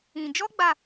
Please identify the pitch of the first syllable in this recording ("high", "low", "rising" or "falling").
low